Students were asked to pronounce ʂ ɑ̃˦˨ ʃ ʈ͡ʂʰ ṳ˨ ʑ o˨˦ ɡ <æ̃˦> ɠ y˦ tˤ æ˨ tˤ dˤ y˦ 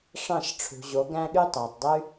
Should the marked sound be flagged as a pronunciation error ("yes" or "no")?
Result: no